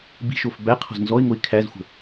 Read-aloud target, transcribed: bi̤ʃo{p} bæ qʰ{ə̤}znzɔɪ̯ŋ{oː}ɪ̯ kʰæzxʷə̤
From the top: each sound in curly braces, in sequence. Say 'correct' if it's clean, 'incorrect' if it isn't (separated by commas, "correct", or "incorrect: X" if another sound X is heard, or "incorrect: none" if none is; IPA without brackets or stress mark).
incorrect: f, incorrect: ɔ̤, incorrect: o